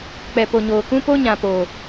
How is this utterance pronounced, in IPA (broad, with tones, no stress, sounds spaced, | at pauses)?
k͡p ɛ˨ p o˨ ɲ oː˨ k ũ˦ p o˦ ɲ ã˨ p o˨